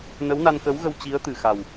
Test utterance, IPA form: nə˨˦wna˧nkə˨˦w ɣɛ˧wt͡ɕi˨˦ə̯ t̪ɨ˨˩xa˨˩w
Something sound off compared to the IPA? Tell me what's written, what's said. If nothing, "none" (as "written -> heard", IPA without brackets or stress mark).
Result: ɛ˧ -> ə˧